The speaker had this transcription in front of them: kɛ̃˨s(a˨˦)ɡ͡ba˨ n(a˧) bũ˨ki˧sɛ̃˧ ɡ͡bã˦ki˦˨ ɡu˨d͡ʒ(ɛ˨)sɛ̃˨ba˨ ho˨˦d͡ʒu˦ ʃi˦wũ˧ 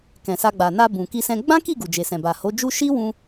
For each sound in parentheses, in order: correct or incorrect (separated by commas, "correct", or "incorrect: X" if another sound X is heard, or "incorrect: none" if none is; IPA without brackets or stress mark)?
incorrect: a˧, correct, incorrect: e˨